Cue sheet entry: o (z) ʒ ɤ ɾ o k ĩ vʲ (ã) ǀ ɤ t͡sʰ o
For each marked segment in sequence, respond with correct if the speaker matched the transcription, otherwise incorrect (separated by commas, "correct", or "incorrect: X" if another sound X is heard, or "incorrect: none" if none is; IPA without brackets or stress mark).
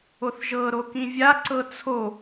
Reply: incorrect: θ, incorrect: a